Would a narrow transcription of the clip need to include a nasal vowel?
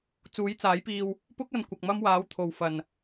no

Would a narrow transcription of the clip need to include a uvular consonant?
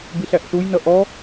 no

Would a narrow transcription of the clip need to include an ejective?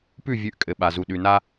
yes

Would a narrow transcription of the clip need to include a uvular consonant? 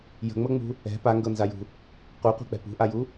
yes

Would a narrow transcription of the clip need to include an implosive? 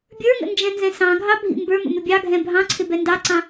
no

